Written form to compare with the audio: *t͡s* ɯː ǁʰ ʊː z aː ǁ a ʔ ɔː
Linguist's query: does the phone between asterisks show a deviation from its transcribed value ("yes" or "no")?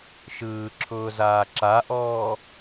yes